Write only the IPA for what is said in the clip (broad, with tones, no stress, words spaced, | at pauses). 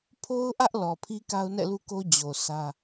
pʰo˦ʊ̯ʔä˦ʔ lɔ˨pʰi˦ ka˦ʊ̯nɛ̰˦˨lu˦ ko˦ d͡ʑo˨ sʰä˦